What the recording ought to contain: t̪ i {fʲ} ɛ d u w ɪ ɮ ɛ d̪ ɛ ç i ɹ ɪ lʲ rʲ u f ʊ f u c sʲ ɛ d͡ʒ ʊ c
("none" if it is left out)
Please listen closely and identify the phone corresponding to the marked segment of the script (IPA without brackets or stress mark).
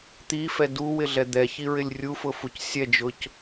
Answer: f